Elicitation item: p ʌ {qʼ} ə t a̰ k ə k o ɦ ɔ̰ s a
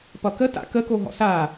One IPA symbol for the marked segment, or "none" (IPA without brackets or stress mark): k